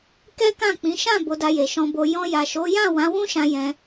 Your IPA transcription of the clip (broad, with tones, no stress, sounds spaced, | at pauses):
k ɛ˦ k ã˦˨ k͡p ĩ˨˦ ʃ ã˦˨ b o˨˦ d a˧ j e˨ ʃ ɔ̃˨ b o˨ j ɔ̃˧ j a˨ ʃ o˨˦ j ã˦˨ w ã˨˦ w ũ˦ ʃ ã˧ j ɛ̃˧